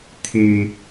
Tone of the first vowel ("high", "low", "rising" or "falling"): high